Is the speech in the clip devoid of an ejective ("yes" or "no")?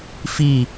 yes